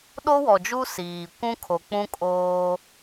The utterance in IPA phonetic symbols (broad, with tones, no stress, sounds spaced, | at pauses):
ɗ o˦ w ɔ˨ d͡ʒ u˦ s iː˨ kʷ ũ˦ kʰ o˨ k͡p ũ˦ kʼ oː˦